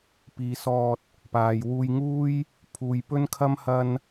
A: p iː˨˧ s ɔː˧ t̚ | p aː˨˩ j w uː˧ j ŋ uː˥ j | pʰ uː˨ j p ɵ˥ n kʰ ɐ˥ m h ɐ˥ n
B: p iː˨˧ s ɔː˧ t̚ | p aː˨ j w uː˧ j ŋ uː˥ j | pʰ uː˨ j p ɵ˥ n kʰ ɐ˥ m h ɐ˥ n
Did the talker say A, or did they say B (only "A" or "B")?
B